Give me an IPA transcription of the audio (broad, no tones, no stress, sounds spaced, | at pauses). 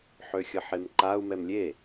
ħ ø xʲ ə ħ e m ǃ a u̯ m ɛ m lʲ e